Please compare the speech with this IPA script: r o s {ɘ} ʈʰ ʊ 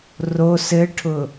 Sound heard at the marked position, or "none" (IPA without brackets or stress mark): ɘ